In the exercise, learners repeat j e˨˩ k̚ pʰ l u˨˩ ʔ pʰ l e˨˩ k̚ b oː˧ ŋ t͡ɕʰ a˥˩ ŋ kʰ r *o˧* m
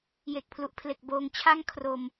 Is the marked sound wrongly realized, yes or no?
no